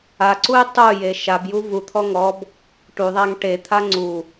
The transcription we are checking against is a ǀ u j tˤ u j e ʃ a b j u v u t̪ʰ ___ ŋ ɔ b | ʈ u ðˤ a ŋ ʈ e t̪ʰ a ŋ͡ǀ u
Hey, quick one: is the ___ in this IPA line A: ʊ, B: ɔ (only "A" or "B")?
B